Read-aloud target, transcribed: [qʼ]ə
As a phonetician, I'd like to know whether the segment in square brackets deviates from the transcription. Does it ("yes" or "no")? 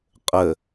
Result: no